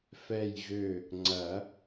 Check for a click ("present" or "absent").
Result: present